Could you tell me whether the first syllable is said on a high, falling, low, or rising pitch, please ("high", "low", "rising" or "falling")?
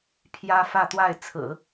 high